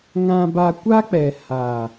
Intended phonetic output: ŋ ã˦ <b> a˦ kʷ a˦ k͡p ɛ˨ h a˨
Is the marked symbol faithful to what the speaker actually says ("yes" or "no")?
yes